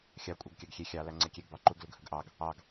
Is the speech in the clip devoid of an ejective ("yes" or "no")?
no